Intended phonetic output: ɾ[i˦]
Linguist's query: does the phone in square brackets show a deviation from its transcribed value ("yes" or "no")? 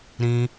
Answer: yes